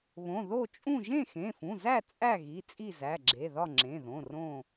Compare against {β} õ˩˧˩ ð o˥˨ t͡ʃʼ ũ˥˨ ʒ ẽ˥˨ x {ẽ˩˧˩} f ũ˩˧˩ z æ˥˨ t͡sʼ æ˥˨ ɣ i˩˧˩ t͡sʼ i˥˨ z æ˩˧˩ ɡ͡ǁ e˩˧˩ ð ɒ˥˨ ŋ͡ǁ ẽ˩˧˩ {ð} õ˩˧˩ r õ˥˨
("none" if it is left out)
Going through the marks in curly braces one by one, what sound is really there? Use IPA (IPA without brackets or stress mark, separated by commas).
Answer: β, ẽ˩˧˩, ð